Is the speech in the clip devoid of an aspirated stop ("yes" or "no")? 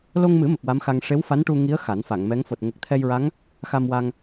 no